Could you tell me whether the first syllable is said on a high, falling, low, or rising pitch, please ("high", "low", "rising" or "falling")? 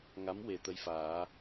rising